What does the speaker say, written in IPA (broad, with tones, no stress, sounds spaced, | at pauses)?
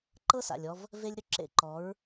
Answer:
ǃ ɤ˦ s a̰˨ lʲ ɔ˧ v | v e˦ lʲ ɾ ʏ˦ ǁ ḛ˧ ǃ ɔ˨˦ ɹ